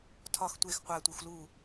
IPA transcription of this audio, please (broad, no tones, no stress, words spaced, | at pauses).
tʰɒx tʷex qʷætʷixʷ lu